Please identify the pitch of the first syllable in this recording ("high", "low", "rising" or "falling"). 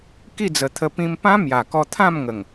falling